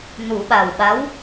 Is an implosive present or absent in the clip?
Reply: present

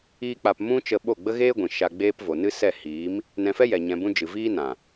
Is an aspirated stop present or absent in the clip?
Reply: absent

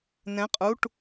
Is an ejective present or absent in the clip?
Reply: present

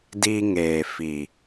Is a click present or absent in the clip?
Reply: absent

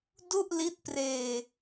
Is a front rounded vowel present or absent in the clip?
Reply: absent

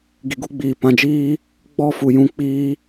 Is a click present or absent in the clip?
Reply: absent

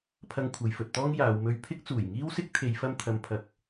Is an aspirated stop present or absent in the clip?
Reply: present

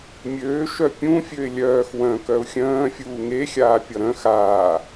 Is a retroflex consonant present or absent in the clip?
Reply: absent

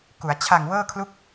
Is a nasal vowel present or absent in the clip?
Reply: absent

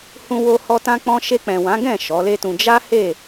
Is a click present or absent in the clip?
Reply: absent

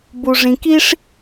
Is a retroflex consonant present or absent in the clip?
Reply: present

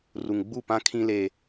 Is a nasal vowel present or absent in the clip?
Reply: present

